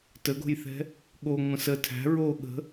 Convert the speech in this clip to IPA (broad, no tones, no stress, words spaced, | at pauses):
təɡo̤jθɛ̤ | ɠo ŋʷə̃sə tʰæ̤ ɹo ɠə̤